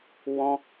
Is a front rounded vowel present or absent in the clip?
absent